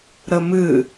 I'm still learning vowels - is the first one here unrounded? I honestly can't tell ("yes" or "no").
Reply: yes